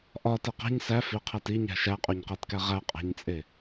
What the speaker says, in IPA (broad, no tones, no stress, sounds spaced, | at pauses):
ʔ ɒ t e q æ̤ ɲ s æ f i qʰ æ t i ɲ æ̤ ʃ æ qʼ o ɲ q æ t k æ ʁ æ qʼ æ̤ ɲ t͡sʼ e